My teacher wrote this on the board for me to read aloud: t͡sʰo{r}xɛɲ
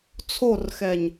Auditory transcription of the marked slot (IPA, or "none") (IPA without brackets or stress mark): r